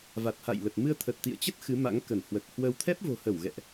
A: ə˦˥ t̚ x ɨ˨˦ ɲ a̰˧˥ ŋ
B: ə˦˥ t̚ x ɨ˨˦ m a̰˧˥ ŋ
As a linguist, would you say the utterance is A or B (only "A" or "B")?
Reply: B